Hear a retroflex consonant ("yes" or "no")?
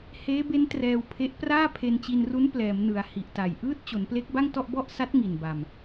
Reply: no